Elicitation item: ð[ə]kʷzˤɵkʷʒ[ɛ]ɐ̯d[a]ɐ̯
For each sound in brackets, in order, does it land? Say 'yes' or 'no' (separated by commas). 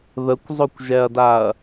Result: yes, yes, yes